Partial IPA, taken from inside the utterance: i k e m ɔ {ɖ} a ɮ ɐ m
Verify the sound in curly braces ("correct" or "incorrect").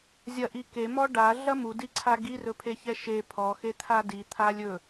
correct